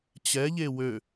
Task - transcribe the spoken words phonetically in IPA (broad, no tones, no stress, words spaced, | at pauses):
t͡ɕɛʎe wø